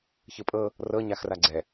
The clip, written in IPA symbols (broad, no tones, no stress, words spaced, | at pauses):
çɯpʼɤ | rɤɲaxra ɡ͡ǀɛ